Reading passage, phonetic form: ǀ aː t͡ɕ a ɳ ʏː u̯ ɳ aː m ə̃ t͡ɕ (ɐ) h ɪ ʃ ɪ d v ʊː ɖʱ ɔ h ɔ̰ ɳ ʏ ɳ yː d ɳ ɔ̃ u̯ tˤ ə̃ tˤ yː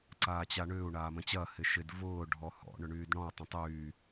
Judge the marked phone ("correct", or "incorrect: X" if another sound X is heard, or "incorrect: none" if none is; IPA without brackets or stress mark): correct